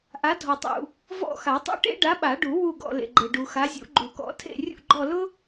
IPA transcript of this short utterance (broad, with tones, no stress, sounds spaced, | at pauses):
ʔ a˨˥ dʱ ɔ˨ tˤ ṵ˨ | v ɔ̰˦˨ x a˨˩˦ tˤ ṵ˦˨ ʈ ḛ˥ ɖ a˨˥ ɓ a˨˩˦ ɖ u˨˩˦ w u˦˨ ɡ ɔ̰˨ l ḛ˨ ɡ͡ǃ e˨ ɖ u˨ x a˨˥ zʲ ṵ˨˩˦ ɡ͡ǃ u˨˩˦ k ɔ̰˨˥ tʰ ḛ˦˨ rʲ ṵ˦˨ ɡ͡ǃ ɔ˦˨ l ʊ˥